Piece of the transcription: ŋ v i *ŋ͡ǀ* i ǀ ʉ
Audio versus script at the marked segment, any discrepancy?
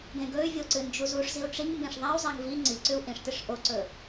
no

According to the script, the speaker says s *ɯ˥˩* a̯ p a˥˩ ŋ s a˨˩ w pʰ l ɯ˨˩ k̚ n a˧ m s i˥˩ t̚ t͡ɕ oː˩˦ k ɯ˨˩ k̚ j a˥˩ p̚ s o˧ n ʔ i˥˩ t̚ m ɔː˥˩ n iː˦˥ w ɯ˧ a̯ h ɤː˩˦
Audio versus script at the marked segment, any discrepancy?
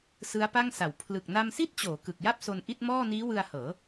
yes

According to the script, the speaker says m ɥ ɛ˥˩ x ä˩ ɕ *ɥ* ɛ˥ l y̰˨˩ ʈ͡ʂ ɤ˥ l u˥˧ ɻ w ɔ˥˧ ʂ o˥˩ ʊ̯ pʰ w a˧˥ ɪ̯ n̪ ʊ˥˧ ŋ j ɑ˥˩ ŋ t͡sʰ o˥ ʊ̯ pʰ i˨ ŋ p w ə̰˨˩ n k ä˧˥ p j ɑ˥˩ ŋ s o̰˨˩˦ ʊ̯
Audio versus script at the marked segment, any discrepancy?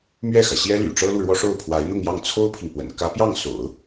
yes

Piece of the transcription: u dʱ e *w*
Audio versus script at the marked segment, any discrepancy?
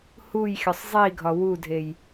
yes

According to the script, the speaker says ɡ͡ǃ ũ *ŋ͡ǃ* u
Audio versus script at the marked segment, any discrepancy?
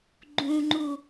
no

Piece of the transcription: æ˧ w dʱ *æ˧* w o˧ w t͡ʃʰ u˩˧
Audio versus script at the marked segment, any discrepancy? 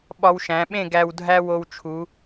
yes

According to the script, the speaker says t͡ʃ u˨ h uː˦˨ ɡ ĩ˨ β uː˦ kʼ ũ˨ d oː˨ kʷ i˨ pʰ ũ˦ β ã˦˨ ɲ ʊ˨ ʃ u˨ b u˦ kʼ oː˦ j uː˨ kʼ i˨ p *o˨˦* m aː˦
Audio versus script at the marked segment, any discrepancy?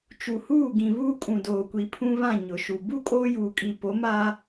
no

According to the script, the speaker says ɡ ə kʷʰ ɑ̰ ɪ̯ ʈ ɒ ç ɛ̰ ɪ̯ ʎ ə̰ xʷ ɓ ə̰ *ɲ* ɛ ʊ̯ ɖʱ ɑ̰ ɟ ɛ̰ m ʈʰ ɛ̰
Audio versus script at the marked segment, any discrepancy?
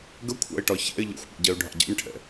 yes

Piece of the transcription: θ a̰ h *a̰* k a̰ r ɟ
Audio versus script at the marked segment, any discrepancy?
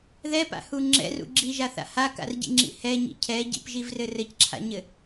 yes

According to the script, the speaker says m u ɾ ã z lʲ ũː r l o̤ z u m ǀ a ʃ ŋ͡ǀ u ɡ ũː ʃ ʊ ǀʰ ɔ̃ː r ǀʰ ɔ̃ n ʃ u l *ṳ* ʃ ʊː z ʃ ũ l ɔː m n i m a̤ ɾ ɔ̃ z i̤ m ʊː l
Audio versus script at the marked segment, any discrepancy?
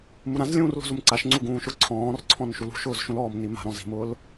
no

